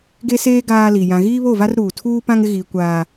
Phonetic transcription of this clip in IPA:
ɡ e˦ s eː˦ ɡ aː˦ l i˨ j ã˨ ɣ iː˦ β o˦˨ v a˦ r ɾ uː˨ tʰ uː˦ p ã˦ ŋ ɪ˦ ɣ iː˨ kʷ aː˨

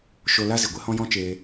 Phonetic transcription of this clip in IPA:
ʃ o˧ l a˦ z i˨ ɡʷ e˦ h ɔ̃˦ j ɔ̃˦ t͡ʃ eː˧

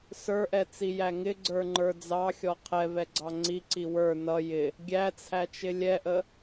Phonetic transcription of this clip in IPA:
s ə˞ ʔ ɛ t͡s i j æ ŋ ɪ ɡ͡ǀ ə˞ ŋ͡ǃ ə˞ d͡z ɑ xʲ ɔ qʰ ɛ v ɛ ɡ͡ǀ ɑ ŋ͡ǀ i ǀ i w ə˞ n ʌ j ɪ | ɡʲ æ t͡sʰ æ t͡ʃ ɪ lʲ ɛ ʔ ə

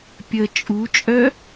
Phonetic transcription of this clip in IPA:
pʲ ə t͡ʃʼ u t͡ʃʼ œ

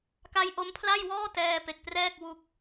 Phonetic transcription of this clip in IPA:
k a˦˥ j ʔ o˦˥ m pʰ l a˥˩ j w ɔː˥˩ t ɛː˧ p e˨˩ k̚ p r ɛː˥˩ k̚ w u˥˩ k̚

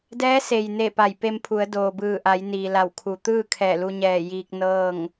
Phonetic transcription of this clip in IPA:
d ɛː˧˥ s e˩ j n e˧˩ p a˧˩ j p e˧ m pʰ u˩˧ ə̯ d oː˩ b ɯː˧˩ ʔ a˩˧ j n iː˩ l a˧˩ w kʰ u˩ t̪ ɯː˥˨ kʰ ɛː˧˩ l u˧ ɲ ɛː˧˩ j iː˧ k̚ n ɤː˥˨ ŋ

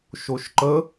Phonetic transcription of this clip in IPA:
ʃ o ʃ ǃ ə

